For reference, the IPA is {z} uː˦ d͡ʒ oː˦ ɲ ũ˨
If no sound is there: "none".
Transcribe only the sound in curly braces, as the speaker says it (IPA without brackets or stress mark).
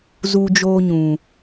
z